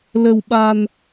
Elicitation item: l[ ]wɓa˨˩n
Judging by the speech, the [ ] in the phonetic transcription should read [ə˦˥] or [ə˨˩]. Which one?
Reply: ə˨˩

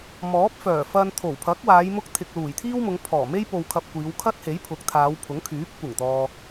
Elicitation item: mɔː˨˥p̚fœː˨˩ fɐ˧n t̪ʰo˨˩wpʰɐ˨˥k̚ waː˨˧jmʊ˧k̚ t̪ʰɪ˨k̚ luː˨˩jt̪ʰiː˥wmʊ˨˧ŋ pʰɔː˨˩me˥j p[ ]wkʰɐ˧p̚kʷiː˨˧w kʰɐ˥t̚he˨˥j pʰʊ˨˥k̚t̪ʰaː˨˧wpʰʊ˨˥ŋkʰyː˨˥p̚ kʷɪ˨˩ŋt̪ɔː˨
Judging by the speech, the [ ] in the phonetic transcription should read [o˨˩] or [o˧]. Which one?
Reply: o˧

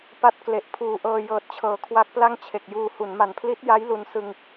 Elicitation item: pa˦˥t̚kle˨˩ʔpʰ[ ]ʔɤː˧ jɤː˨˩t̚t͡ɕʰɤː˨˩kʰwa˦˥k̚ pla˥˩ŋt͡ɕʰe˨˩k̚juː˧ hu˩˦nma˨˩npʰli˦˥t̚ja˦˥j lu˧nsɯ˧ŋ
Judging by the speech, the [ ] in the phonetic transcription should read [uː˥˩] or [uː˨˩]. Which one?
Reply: uː˨˩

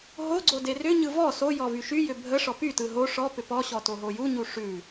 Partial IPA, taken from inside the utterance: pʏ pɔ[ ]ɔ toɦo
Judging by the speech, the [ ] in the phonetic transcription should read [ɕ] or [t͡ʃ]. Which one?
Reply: ɕ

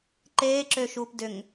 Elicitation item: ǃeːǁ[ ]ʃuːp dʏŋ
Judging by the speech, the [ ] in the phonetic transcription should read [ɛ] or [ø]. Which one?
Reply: ø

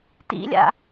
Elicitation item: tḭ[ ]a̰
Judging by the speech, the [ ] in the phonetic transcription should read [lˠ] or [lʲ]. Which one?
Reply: lʲ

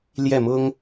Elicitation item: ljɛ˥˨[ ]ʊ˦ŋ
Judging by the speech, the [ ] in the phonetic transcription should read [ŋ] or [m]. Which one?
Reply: m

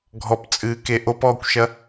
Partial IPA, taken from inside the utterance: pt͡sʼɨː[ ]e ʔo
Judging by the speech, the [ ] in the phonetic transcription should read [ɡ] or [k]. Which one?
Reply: k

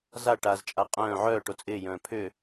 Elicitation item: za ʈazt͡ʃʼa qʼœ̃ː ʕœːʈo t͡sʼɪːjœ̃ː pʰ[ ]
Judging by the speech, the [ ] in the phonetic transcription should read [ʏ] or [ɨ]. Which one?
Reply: ʏ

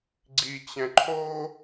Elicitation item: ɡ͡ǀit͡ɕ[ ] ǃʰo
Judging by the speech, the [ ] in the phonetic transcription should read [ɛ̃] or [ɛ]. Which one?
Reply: ɛ̃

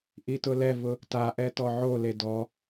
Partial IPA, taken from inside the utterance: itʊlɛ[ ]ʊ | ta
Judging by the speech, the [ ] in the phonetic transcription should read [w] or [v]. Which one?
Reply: v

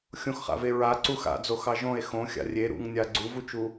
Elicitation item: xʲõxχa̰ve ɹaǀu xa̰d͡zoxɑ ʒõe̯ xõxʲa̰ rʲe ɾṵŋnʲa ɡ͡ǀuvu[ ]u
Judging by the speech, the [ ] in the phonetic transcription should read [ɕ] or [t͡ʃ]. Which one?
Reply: t͡ʃ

